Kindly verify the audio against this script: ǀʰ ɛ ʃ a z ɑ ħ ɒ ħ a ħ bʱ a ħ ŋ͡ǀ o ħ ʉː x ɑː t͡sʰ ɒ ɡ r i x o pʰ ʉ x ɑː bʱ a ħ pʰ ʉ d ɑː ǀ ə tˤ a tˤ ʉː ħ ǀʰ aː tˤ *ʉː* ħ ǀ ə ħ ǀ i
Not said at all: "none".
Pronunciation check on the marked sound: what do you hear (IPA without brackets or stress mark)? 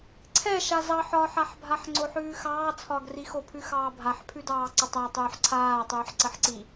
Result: ʉː